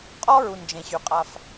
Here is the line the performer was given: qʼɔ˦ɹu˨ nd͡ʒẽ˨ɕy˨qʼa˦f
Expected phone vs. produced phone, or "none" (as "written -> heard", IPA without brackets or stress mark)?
none